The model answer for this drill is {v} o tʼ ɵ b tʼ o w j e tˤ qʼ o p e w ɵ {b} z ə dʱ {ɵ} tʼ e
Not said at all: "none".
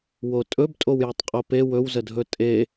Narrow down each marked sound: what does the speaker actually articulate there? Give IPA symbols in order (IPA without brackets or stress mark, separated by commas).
w, w, ɵ